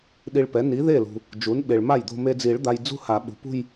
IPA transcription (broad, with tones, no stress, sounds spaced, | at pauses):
ɗ i˧ ɭ p ɛ˩˥ n i˩˥ ð e˥˩ l ṳ˩ | d͡ʒ u˩˥ n ɓ e˩ ɭ m a˥˩ j d̪ o̤˧ m e˧ d͡z i˨˩˦ ɭ d̪ a˧ j d͡z ṳ˥˧ h a˨˩˦ ɓ ṳ˩ p ṳ˥˧ j